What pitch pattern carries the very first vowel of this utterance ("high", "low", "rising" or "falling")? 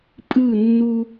falling